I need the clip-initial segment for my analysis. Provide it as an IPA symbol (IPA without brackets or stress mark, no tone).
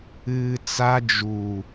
ɨː